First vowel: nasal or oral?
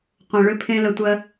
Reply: nasal